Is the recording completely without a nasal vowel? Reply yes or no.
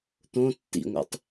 no